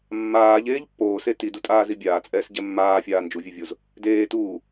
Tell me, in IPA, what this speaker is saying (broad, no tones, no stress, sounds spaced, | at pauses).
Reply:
mː aː ʎ eː ʎ pː oː s e t i d u tʼ aː z i bʲ aː t͡sʼ ɛː s ɟ ɛ mː aː fʲ aː n d͡ʒ u vʲ e vʲ o z | d eː t uː